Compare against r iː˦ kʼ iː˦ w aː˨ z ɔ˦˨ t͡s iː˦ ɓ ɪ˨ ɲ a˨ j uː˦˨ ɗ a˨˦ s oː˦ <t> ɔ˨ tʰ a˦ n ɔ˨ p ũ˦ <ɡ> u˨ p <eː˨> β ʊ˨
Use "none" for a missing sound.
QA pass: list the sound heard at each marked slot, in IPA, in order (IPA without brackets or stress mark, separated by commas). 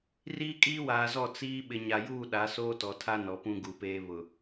t, ɡ, eː˦